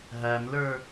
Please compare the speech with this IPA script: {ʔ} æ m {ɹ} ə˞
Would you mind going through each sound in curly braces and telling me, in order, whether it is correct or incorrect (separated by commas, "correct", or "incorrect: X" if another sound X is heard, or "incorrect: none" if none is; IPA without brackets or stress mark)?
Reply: incorrect: ɦ, incorrect: l